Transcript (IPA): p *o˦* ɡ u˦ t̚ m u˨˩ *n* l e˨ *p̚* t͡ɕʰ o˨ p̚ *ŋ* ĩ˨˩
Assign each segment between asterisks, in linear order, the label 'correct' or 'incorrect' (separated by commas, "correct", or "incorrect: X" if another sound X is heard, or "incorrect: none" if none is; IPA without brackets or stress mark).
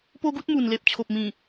correct, correct, correct, incorrect: m